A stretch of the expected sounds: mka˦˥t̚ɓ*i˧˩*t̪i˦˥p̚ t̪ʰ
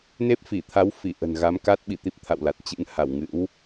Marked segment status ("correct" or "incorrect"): correct